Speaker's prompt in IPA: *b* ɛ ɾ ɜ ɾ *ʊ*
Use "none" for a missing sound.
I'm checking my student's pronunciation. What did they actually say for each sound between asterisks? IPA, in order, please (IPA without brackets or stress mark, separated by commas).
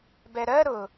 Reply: b, ʊ